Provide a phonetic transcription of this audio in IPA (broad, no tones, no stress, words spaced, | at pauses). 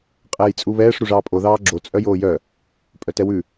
qʼɛːjt͡sʼuβɛːʂ ɾuʐɑːpʼo ðɑːɡ͡ǁo t͡sʼœjoːjœ | pʼœtɛwʉ